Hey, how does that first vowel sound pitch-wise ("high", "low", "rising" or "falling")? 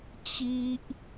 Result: high